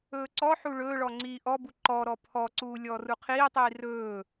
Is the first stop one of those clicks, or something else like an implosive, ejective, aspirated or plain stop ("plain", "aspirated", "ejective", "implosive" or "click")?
click